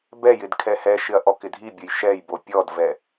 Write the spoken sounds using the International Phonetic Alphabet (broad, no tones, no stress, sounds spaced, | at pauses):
b ɛ j ɪ d kʰ ɛ h ɛ ʃ ɪ ɐ̯ ʔ ɔ k ɪ dʱ i bʲ ʊ j ʃ ɛ j b o pʲ ɔ d v ɛ